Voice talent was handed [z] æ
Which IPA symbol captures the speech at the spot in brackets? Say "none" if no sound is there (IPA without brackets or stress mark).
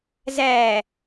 z